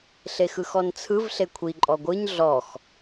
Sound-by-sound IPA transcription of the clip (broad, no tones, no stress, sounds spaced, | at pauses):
ɬ e x ɯ x ɔ n t͡sʰ ɯ v ɬ e kʷʰ i ǃʼ ɔ ɡʷ ɯ ɲ ɮ ɔ x